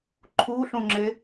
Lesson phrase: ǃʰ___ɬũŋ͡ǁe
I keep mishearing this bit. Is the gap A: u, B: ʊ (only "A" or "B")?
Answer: A